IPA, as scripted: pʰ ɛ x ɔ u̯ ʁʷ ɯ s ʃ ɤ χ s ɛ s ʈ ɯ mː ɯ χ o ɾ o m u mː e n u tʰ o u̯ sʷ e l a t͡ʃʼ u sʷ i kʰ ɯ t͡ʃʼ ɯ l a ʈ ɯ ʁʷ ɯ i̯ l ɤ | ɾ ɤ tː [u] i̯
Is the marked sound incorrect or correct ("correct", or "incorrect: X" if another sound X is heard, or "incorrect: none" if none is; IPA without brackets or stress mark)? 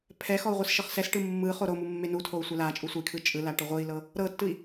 incorrect: ɯ